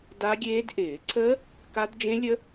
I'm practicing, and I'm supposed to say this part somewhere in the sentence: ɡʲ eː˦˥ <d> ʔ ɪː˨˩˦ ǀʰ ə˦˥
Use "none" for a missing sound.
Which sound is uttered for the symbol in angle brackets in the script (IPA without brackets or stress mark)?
d